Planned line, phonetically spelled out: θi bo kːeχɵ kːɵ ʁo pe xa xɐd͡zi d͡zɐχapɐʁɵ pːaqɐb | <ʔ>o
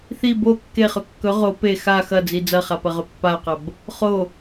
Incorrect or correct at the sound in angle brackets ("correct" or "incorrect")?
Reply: incorrect